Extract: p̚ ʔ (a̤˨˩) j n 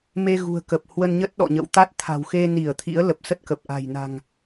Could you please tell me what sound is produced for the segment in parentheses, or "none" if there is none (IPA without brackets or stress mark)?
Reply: a̤˨˩